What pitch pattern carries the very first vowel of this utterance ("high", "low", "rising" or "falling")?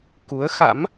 rising